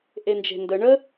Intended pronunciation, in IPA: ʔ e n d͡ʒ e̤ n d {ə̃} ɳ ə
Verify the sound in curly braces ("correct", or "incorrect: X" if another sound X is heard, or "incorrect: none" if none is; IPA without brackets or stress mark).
incorrect: ə